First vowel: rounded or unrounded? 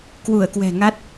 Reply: rounded